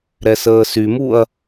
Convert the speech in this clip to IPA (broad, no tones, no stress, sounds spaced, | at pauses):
ɾ ɛ s əː s y m u ɐ̯